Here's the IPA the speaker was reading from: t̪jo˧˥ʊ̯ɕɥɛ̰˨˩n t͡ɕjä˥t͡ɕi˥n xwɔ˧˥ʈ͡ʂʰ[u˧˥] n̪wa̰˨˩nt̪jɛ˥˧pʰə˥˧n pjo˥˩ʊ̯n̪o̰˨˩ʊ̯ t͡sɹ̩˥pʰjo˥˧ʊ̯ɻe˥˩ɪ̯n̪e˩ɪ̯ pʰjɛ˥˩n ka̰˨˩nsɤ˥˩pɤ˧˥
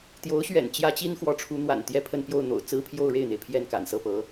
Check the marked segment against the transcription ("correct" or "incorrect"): correct